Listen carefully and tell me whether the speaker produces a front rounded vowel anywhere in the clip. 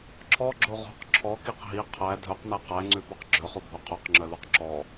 yes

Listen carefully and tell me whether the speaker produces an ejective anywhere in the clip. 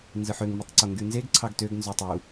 no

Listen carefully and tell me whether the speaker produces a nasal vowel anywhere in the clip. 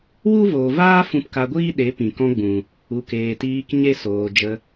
yes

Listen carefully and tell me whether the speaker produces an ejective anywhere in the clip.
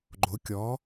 no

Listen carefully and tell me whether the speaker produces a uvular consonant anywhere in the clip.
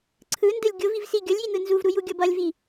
no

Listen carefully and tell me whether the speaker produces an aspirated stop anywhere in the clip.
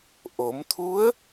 yes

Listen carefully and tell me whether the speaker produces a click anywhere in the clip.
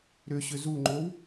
yes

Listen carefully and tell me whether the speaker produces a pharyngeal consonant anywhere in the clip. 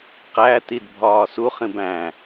no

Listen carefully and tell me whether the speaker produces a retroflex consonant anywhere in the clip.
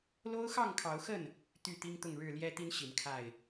yes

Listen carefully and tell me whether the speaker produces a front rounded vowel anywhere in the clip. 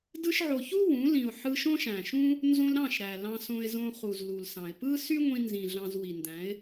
yes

